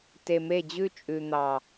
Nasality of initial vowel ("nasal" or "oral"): oral